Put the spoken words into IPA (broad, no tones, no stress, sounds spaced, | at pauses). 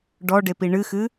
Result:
ɖ ɔ ɖ e p i ɳ ɨ x ɨ